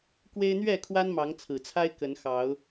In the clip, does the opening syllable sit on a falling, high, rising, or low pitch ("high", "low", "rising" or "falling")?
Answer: high